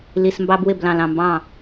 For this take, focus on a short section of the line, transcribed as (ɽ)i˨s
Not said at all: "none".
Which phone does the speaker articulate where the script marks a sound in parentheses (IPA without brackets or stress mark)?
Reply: l